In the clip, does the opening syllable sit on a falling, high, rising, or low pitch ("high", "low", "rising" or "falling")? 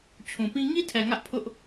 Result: low